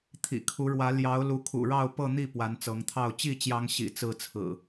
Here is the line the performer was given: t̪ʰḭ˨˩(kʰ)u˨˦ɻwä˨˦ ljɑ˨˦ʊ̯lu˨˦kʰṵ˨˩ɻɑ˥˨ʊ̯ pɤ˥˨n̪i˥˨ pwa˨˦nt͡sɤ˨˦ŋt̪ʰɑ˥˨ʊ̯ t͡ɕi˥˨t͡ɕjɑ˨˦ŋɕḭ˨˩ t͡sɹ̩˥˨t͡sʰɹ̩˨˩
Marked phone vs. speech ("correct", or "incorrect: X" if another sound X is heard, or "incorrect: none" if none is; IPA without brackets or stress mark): correct